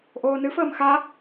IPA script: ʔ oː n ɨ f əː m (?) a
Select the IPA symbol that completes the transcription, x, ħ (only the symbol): x